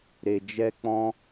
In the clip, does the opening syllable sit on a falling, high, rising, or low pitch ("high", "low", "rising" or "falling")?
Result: low